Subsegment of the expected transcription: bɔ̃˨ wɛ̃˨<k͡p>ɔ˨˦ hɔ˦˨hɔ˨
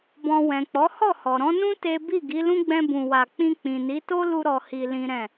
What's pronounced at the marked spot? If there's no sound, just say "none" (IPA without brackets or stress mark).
k͡p